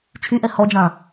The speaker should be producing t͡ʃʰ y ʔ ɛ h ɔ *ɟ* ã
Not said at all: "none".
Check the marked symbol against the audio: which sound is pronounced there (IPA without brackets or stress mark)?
d͡ʒ